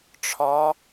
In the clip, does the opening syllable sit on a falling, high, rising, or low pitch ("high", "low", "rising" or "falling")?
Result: rising